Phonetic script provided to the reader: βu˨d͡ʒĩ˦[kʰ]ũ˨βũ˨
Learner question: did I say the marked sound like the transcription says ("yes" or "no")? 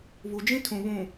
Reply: no